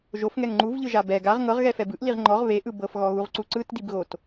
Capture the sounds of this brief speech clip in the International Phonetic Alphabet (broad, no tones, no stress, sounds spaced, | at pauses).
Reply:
ʒ o f ŋ ɛ ŋ ŋ͡ǃ u v ʎ ɯ ʒ a b ɛ ɡ a ʁ ŋ ɤ ʁ ɣ ɛ f ɛ b ɯ ʔ l i ʁ ŋ͡ǃ ɔ ʁ β e ʔ ɯ b ɤ f ɣ ɔ ɣ u ʁ ǀ u ǀ ɯ t d i b ɣ o t